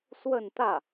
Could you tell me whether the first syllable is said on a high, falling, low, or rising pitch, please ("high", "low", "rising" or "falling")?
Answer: falling